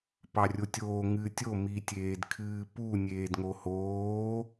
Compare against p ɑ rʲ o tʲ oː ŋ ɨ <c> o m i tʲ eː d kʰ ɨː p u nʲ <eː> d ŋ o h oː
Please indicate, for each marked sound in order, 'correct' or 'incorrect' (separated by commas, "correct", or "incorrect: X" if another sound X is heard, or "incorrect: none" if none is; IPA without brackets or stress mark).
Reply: incorrect: tʲ, correct